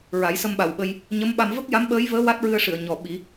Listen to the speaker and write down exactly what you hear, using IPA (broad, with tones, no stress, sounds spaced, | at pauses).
ɹ a˨˩˦ j s ə˧ m ɓ a˨˩ w ɓ ə˧ j | ɲ ə˧˥ m ɓ a˧ m v ə˦˥ k̚ j a˧˥ m ɓ əː˧˥ j v əː˧˥ w a˦˥ t̚ ɹ ɨ˧ ə̯ ʂ ɨ˨˩˨ ə̯ ɲ ɔ˨˩ ɓ i˨˩˦